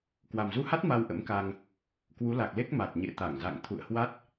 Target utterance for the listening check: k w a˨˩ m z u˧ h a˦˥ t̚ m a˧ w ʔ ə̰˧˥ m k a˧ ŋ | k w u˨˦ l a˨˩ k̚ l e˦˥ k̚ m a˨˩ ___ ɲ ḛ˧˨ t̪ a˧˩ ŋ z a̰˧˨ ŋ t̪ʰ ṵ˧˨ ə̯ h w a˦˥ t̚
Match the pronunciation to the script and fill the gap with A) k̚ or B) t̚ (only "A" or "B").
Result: B